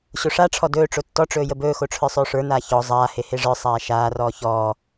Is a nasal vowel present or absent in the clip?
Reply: absent